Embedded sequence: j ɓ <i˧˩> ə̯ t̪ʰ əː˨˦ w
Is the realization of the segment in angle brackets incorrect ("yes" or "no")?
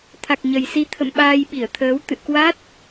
no